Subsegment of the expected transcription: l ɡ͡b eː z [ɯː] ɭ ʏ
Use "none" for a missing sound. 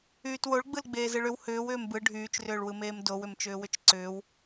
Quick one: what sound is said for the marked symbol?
ɯ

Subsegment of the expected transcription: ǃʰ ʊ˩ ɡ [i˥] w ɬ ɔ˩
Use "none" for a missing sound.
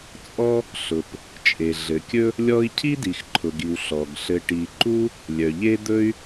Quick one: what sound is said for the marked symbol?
i˩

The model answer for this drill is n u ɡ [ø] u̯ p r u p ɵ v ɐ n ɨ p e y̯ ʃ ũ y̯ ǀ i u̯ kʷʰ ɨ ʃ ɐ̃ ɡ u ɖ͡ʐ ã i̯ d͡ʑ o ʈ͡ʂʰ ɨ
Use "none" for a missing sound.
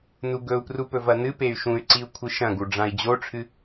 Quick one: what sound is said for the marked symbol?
ɵ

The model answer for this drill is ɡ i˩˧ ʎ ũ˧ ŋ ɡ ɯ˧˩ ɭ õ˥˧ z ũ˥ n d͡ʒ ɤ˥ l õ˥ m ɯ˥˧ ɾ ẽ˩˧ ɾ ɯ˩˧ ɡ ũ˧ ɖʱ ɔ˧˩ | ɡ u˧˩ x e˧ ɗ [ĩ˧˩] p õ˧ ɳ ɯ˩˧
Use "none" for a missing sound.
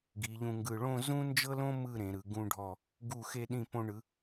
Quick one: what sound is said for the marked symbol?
ĩ˧˩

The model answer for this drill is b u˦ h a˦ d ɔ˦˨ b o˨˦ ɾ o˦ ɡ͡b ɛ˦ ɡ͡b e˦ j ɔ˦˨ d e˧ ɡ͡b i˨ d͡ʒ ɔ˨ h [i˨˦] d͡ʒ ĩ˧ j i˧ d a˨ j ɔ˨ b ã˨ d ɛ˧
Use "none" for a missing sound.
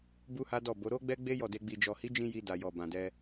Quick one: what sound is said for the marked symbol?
i˨˦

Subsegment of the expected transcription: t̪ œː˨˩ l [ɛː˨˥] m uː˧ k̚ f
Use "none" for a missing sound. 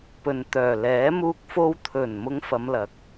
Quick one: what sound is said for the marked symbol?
ɛː˨˥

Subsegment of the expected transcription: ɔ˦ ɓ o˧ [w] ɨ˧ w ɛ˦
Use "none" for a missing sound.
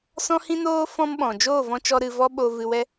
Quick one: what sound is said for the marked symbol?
v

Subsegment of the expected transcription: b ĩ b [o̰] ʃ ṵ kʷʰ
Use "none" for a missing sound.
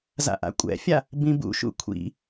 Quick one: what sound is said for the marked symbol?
ṵ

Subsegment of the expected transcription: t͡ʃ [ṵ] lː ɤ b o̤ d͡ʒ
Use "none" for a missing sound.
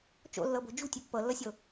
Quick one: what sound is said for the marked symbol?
o̰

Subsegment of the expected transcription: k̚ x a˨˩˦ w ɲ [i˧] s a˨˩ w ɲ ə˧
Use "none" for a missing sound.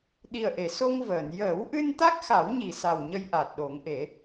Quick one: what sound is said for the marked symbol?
i˨˩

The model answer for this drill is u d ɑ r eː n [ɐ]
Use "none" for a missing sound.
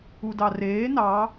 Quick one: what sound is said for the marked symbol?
ɑ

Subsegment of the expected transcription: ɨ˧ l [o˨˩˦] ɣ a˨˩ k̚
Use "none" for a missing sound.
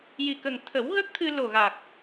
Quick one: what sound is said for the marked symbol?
o˨˩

